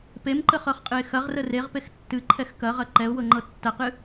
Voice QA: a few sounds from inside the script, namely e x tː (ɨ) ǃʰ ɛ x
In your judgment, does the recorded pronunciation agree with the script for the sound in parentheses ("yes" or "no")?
yes